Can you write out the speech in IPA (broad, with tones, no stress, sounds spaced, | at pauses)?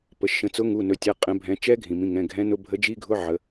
p ə˩˧˩ ʃ ə̃˩˧ t͡s ʊ˨˥ ŋ u˩˧˩ n ɵ˩˧ tʲ a˩˧˩ qʼ ɛ̃˩˧ bʱ ɛ̃˩˧ t͡ʃ ɛ˦˥ ɡʱ ĩ˩ m ĩ˩˧˩ ŋ ɛ̃˩˧˩ ɡʱ ɛ̃˨˥ n ʊ˧˥˧ bʱ ə˨˥ d͡ʒ i˧˥˧ ɡʱ ʊ˧˥˧ ʕ ə˩˧